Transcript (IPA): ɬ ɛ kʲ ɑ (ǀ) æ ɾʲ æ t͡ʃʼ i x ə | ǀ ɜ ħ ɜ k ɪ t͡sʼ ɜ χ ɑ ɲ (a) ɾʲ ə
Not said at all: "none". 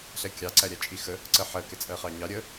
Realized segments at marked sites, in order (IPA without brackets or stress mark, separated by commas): ǀ, ɑ